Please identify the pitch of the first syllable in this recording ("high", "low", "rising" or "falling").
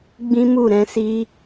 high